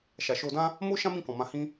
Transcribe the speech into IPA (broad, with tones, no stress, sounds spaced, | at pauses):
ʃ a˨ ʃ o˧ d ã˦ | m o˦ ʃ ã˦ m ĩ˦˨ k ɔ̃˨ m ã˧ h ĩ˦